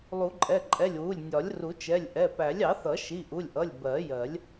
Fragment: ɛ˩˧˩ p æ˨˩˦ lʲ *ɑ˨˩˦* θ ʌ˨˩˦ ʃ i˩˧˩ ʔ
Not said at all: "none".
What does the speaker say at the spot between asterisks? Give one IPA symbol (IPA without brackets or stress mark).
ɑ˨˩˦